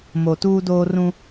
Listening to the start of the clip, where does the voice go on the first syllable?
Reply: low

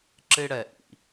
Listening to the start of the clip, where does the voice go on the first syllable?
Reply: high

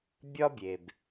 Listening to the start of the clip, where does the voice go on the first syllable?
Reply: high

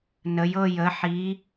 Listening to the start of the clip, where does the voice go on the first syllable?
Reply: rising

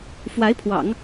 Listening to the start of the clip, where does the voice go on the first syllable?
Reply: rising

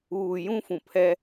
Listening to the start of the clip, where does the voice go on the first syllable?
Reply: low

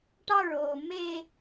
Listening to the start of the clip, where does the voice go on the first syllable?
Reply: high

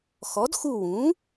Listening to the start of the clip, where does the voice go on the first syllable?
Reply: rising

